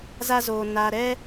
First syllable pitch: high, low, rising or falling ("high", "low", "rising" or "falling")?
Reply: high